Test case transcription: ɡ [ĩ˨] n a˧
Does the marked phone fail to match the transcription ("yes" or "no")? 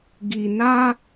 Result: yes